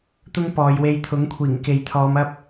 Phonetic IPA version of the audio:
t̪ ʊ˥ ŋ p ɔː˨˧ j w e˧ j t̪ʰ ʊ˨˥ ŋ kʷʰ iː˨˩ ŋ k e˨ j t̪ʰ ɔː˨˧ m ɐ˥ p̚

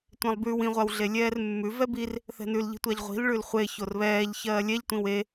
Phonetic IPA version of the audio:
tʷ ẽ lˠ b ʉ w ĩ ʁʷ a w ɮ e lʲ ɛː r mː ʉ v ɛ b i r | θ ɛ̤ n ʉ l ʎ i̤ tʷ a ʎ ʁʷ i̤ l ɭ ʉ l χʷ e ç o r β ɛː ʎ ç ɜː lʲ ɛ ʎ tʷ ĩ w e

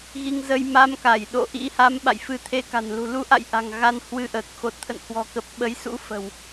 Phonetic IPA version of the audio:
ɣ i˧ ŋ z ə˧ j m a˧ m k a˧˩ j ɗ o̰˧˨ ʔ ḭ˧˥ h a˨˦ m ɓ a̰˧˨ j f ɨ˧ t̪ʰ e˧ k a̤˨˩ n l ṳ˨˩ l u˧ ʔ a̰˧˨ j ʔ a̤˨˩ ŋ ɣ a˧ n h w ɨ˧ ʔ əː˨˩ k̚ x o˨˩ t̚ t̪ʰ ə̰˧˨ n h w ɔ̤˨˩ k ə˨˩ p̚ ɓ ə˨˦ j s ṵ˧˥ f ə̤˨˩ w

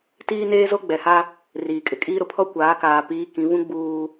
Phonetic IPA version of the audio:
t iː˦ n eː˦ z o˦ ɡ͡b ɛ˨ h a˦ | r iː˨ kʼ ɪ˨ kʼ iː˦ ɾ ʊ˨ pʰ ɔ˦ kʷ aː˨˦ k aː˨ p iː˨˦ k ĩ˨˦ β ũ˦ ɡ͡b uː˨

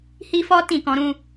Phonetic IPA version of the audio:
h i˦ f ɔ˦ t ĩ˦˨ k ɔ̃˧ ɾ ũ˦

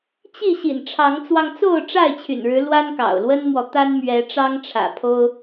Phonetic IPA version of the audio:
t͡ɕ i˥˨ ɕ ḭ˨˩ n ʈ͡ʂʰ ɑ˨˦ ŋ t͡s w ɑ˧ ŋ t͡s o˥˨ ʊ̯ ʈ͡ʂ a˥˨ ɪ̯ t͡ɕʰ y̰˨˩ n ɻ ɻ̩˨˦ l w a˦ n k ɑ̰˨˩ ʊ̯ l w ə˦ n m w ɔ˨ t̪ a˦ n m ɥ ɛ˨˦ ʈ͡ʂ ɑ˦ ŋ ʈ͡ʂʰ ä̰˨˩ pʰ o˦ ʊ̯

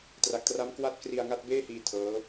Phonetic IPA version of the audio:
t r a˨˩ k̚ t r a˦˥ m k w a˦˥ t̚ k r i˧ a̯ ŋ a˥˩ t̚ b eː˥˩ h iː˧ tʰ ɤː˦˥

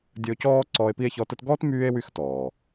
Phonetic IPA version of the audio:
dʲ ə˦ o̯ c ɔː˥ ǀ ɔː˦ e̯ p i˥ e̯ ç ɔ˦ t ə˥ t ɡ ɔː˥ t m yː˦ e̯ w y˦ x t ɔː˩

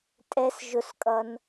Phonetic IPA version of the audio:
tʼ ɛ s ʒ ʊ s kʼ ʌ n

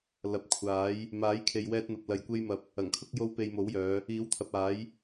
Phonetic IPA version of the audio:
l ɐ˨ p̚ kʷʰ aː˨˥ j | m aː˨˥ j kʰ e˨ j w ɛː˧ t̚ n̪ ɐ˨ p̚ l ɐ˨ j kʷ e˧ j m ɐ˨˥ p̚ | ɐ˨˩ ŋ kʰ ʊ˥ k̚ j o˥ w p e˧ j m o˨˥ w j œː˨˧ | iː˨˥ w t̪ʰ ɐ˨ p̚ aː˨˥ j

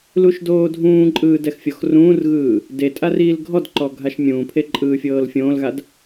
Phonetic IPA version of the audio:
l u ʃ d oː dʱ ũː ǃʼ ɯː d ɛ x fʲ ɔ x r ũː r ɣ ɯː | d e tʼ a r iː l ɡʱ ɔ d ǃ ɔ ɡʱ a ʃ mʲ ũː pʰ e ǃʼ ɯː fʲ ɤː l fʲ õː l ɣ a d

